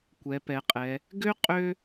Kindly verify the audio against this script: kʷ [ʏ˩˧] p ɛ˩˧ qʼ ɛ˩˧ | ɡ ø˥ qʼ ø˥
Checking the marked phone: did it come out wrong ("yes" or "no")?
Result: yes